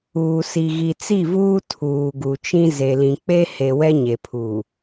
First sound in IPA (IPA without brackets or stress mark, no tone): uː